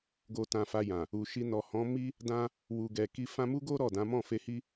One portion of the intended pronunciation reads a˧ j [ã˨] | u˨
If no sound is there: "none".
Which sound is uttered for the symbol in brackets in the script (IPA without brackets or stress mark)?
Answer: ã˨